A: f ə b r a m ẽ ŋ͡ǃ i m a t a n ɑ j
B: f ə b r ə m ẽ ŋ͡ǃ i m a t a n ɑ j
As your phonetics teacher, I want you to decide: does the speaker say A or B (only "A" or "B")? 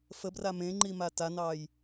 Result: A